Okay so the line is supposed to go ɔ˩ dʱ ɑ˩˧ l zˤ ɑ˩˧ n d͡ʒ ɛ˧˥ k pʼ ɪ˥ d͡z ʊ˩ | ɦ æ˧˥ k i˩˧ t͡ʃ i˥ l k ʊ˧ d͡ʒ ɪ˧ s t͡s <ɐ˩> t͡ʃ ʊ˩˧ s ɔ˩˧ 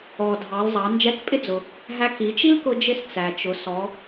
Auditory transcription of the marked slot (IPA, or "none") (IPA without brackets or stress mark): æ˩